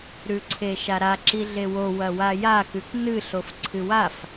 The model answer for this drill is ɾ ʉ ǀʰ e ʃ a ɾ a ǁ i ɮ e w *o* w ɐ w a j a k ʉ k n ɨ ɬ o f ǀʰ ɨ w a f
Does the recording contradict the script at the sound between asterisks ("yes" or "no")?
no